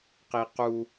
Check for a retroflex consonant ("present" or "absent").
absent